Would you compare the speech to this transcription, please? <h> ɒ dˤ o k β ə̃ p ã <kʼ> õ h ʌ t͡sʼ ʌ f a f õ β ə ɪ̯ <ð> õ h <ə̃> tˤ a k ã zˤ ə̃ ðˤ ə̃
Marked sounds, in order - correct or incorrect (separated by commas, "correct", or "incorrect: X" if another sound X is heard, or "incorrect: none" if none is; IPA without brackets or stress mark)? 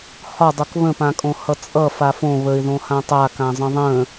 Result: correct, correct, correct, incorrect: ã